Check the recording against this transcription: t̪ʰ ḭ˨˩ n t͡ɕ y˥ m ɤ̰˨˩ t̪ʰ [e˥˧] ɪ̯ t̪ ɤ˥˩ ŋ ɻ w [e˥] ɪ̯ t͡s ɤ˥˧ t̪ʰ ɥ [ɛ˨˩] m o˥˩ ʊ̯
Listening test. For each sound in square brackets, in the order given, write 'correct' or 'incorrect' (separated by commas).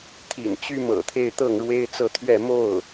correct, correct, incorrect